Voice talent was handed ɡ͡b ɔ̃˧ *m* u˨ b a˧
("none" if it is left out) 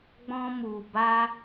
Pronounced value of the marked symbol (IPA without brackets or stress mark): m